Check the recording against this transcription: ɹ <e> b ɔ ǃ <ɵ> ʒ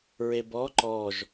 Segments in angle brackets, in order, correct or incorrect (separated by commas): correct, incorrect